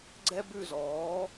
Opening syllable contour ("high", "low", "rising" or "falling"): high